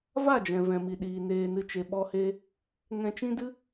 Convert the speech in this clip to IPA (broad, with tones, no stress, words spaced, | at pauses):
va˦˨d͡ʒɛ̃˨ vɛ̃˨mi˨ɗiː˨ neː˨nɨ˨t͡ʃe˨ ɓɔ˧he˧ | ŋɛ̃˧t͡ʃĩ˦dɨ˦